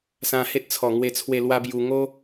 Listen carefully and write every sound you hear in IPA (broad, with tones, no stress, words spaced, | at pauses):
sã˧he˦t̚t͡sʰɔ˨˩ ŋwe˥˧t͡sʰwe˥˧ lwa˦bju˧ ŋo˦